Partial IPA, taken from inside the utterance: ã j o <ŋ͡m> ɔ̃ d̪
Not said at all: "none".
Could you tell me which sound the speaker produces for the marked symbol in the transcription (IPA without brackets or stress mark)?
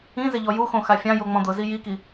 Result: ŋ͡m